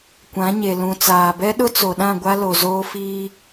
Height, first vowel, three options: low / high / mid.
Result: low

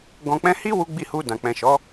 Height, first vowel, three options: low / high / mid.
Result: mid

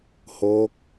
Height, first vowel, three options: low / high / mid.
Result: mid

